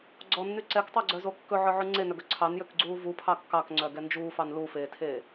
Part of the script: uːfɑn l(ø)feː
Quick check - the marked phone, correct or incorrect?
incorrect